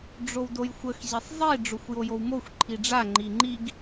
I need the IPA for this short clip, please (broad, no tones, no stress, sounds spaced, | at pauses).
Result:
ɖ͡ʐ o w d o j xʷ ə x ʑ e sˤ zˤ i ɖ͡ʐ o xʷ j o j o w m o xʷ ǃʰ i ɖ͡ʐ a ŋ͡ǃ i ŋ͡ǃ i ɡ